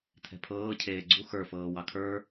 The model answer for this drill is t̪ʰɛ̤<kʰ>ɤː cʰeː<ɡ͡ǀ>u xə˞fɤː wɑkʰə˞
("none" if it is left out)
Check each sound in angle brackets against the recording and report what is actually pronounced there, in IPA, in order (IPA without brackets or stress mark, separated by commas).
pʰ, ɡ͡ǀ